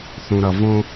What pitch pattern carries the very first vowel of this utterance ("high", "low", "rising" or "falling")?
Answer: low